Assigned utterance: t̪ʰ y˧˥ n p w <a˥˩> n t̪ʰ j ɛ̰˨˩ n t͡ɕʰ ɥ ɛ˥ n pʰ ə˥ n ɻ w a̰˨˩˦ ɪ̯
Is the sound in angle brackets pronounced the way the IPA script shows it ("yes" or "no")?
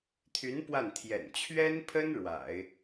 yes